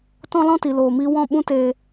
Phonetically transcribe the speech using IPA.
t ɔ̃˦ l ɔ̃˦ t i˨ l oː˨ m iː˧ w ɔ̃˦˨ ɓ ũ˦ t eː˧

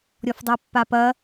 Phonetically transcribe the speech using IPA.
ɾʲ ɔ f dˤ ə˞ pː a p ɐ

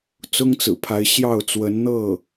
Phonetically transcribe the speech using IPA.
t͡s ʊ˥ ŋ t͡s ɹ̩˨˩ pʰ a˧˥ ɪ̯ ɕ j ɑ˥˩ ʊ̯ t͡s w ə˧˥ n n̪ ɤ˥˩

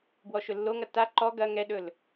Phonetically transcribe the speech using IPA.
b w ɔ ʃ ɵ lː o ŋ ɐ t a ǃ ɔ ɡ ɐ ŋ ɛ ɗ ɵ l

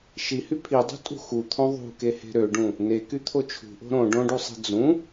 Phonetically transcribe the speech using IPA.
ʃ i h y pʰ i dˤ ṳ tʼ ṳ x u t̪ʰ õ ðˤ ṳ k e h e̤ ɾ ø ɖ ũ | n e k y t̪ʰ o t͡ʃʰ ṳ ʔ o̤ ɾ õ ɖ õ ɖ u sˤ e̤ d͡z ũ

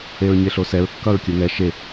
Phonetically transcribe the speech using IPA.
e ɹ ɲ e ɬ o s ɛ ɹ kː ʌ ɹ kʲ ɯ ŋ ɛ ʃ e

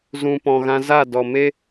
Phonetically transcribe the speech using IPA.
z ũ˨ p ɔ̃˨ ɣ ã˧ z a˦˨ d ɔ˨ m e˦

